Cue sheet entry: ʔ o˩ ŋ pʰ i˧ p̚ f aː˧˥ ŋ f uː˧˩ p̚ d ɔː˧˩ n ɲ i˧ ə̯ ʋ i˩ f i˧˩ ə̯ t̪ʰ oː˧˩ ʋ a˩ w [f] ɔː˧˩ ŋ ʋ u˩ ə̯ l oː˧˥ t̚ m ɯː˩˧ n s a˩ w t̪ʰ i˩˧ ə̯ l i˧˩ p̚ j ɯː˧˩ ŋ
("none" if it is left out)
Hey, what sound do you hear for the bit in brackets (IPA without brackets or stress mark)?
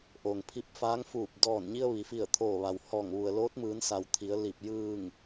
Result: h